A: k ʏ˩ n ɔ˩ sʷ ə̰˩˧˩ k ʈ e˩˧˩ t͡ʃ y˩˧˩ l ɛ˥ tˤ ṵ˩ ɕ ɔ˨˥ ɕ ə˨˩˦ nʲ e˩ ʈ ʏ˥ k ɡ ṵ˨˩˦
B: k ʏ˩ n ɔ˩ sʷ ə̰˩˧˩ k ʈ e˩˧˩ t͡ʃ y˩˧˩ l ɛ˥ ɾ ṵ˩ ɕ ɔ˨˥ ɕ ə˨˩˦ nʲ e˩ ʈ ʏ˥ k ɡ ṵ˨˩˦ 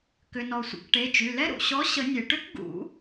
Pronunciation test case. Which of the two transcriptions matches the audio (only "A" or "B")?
B